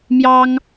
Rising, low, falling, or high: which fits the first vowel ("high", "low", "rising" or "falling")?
high